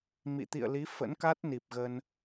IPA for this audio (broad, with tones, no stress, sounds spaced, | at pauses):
m ḭ˧˨ t̪ ḭ˧˨ ə̯ l i˨˦ f ə̰˧˥ n k a˦˥ t̚ n i˨˩ p̚ ɣ ə˧ n